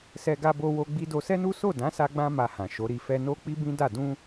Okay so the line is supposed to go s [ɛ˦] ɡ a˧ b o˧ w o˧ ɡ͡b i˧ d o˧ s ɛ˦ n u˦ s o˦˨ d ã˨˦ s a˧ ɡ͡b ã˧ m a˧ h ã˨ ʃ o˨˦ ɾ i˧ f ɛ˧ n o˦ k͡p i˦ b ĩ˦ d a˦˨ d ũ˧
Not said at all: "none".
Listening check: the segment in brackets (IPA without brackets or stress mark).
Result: ɛ˧